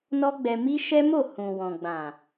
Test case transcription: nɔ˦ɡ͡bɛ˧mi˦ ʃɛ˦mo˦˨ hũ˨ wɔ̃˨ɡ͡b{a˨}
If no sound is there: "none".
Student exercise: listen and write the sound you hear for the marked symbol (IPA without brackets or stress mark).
ã˨